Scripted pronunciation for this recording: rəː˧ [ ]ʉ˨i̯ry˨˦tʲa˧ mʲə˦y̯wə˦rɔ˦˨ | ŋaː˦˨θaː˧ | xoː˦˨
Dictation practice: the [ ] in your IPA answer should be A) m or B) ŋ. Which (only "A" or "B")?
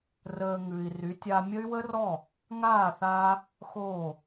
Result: B